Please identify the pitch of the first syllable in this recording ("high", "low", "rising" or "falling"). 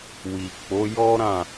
low